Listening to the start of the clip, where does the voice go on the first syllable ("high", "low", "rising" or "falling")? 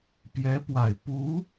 rising